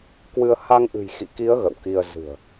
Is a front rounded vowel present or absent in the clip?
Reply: absent